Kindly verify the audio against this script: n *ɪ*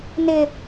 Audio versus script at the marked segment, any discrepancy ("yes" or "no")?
no